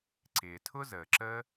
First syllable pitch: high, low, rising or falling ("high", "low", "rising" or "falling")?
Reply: low